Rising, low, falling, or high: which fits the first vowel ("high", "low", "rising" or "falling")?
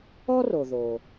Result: high